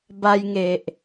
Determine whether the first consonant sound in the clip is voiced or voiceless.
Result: voiced